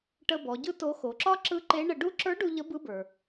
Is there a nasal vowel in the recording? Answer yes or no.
no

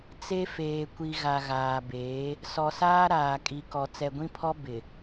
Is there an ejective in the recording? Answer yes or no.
yes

